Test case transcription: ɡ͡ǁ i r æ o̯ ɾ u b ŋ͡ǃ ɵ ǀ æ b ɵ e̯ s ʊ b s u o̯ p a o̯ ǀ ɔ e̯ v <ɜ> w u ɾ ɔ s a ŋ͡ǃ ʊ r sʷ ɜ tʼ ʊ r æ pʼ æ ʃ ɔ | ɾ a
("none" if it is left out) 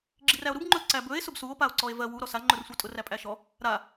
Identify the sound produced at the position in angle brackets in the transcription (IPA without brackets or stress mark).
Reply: ɜ